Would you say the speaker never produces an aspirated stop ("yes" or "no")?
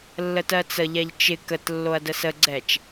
yes